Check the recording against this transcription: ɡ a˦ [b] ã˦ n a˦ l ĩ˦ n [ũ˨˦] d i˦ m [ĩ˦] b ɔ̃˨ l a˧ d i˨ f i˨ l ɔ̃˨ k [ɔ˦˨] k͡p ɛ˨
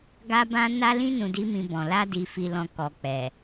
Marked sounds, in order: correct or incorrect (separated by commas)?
correct, incorrect, incorrect, incorrect